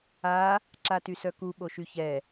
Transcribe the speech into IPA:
a | ǁatysœku ɓoʃyçɛ

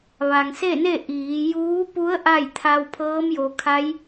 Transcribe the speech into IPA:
ʋa˩ŋse˥˨ne˥˨ ʔiː˩˧juː˧˥pu˧˥ə̯ ʔa˥˨jt̪ʰa˧w pʰɤː˧˥mjo˩˧kʰa˧˥j

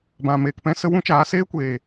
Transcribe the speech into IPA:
bã˨meː˨kpɛ̃˦ sə˦ wũ˦t͡ʃaː˨˦ seː˦ kʷeː˨

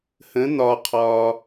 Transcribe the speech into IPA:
hə̃˩˧ n̪ɒ˩qʰɒː˩

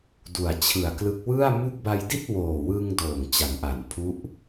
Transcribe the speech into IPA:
du˨˩a̯t͡ɕʰɯ˨˩a̯klɯ˦˥k̚ wɯ˥˩a̯ mu˥˩k̚ ba˧jdi˥˩t̚woː˨˩wɯ˧ŋ doː˨˩ŋ t͡ɕa˩˦nʔa˩˦npʰu˦˥ʔ

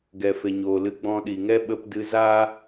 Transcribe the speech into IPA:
ɡɛ˨fe˨ɲoː˨lɨ˧ ɡ͡bɔ̃˧ɗi˨ŋɛ˦ ɓə˧pdɨ˧za˦

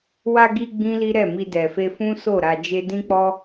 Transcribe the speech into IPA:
wa˧ɡi˧ ɡ͡bĩ˦li˦ɾɛ˦˨ mi˧dɛ˨fe˧fũ˦ so˦˨ɾa˧d͡ʒe˦ dĩ˦k͡pɔ˦

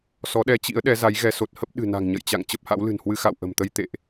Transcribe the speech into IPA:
sɔ˨˦ɗɛ˧t͡ɕḭ˧˥ə̯ ɗɛ˨˦za˨˦jɣɛ˨˦ so˨˩t̚hə˦˥p̚ ɗɨ̤˨˩na̤˨˩ŋ ɲə̰˧˨jt͡ɕa̰˧˨ŋ t͡ɕə˦˥p̚ha̰˧˥wlɨ̤˨˩nhwɨ˧ xa̰˧˨wʔə̤˨˩mt̪ə˧j t̪ḛ˧˨ʔ

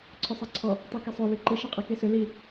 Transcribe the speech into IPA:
ǀʰʏsˤɛǀʰɔ | tˤikesˤo lʏǃiʃ iqʼikesʏ li

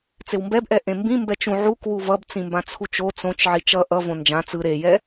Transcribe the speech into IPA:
t͡sewmbɛbʔɛ ʔẽmbĩ mbɛt͡ʃũ ʕuk wuvʌb t͡sĩmbãt͡sʰut͡ʃo t͡sõt͡ʃ ʕit͡ʃʌ ʔʌ võnd͡ʒã t͡sɯ ɾejɛ

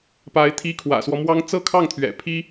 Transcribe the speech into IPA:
pa˧˥ɪ̯ t̪ʰi˧˥ kʰwä̰˨˩swɔ˦mwɑ˥ŋ t͡sɤ˥˧kʰɑ˥˩ŋ t̪ʰɥɛ̰˨˩ pʰi˥

